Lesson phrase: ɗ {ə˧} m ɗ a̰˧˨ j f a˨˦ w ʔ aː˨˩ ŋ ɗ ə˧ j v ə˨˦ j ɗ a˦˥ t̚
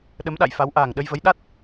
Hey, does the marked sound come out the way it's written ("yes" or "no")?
no